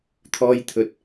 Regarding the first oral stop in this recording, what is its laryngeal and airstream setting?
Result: aspirated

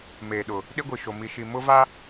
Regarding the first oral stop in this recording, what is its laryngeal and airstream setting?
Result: implosive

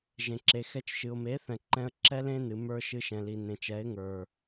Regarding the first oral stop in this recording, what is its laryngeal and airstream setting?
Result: click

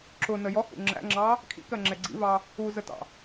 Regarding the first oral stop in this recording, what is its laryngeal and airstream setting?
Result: click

